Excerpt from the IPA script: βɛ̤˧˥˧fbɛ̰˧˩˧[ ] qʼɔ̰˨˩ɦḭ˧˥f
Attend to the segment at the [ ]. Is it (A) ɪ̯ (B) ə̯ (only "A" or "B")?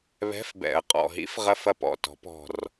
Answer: B